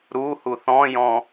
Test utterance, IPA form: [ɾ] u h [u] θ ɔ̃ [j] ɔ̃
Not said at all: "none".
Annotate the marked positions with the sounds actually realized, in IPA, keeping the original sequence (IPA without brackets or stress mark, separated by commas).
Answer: ɾ, u, j